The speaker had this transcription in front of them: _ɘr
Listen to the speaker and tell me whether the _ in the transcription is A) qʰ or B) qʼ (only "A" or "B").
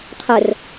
A